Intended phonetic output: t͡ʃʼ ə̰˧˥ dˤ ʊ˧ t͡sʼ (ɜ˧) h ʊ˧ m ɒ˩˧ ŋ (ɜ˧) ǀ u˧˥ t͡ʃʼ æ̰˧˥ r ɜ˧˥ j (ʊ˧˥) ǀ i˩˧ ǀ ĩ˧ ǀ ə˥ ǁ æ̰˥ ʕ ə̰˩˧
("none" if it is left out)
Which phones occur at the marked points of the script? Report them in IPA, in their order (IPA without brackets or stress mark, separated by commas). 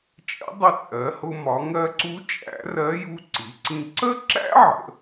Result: ɜ˩˧, ɜ˧, u˧˥